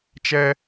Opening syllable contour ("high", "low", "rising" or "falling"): high